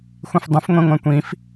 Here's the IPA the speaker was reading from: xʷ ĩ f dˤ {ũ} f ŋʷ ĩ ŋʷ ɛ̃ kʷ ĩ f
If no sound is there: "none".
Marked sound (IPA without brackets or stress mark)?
ũ